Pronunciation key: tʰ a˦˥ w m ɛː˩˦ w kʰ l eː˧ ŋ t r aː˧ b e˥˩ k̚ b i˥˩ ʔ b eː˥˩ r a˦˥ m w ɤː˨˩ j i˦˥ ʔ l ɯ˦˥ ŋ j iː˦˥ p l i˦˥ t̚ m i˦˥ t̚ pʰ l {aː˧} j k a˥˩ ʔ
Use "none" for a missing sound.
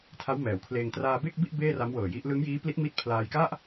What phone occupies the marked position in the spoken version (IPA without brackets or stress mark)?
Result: aː˧